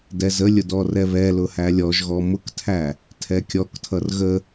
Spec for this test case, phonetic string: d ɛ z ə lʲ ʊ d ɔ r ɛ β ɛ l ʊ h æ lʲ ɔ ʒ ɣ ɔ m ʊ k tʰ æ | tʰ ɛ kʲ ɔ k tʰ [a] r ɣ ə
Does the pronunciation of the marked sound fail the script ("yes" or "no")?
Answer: yes